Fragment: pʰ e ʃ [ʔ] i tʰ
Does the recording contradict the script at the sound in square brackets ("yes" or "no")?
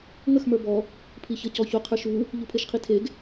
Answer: yes